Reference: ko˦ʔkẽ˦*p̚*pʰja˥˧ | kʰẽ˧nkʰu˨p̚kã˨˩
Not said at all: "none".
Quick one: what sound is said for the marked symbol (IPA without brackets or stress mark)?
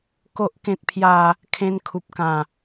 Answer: t̚